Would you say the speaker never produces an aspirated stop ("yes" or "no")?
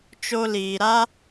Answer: yes